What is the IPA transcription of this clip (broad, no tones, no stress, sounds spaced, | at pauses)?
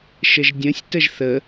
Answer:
ʃ ə ʒ dʲ ə̃ sʲ t ə ʒ θ ə